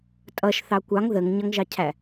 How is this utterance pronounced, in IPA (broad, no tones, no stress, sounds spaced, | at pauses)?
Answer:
tʼ ʌ ʃ θ ɑ kʷ ɑ ŋ ð ə ŋ ɲ ʌ ŋ ʒ ɑ cʰ æ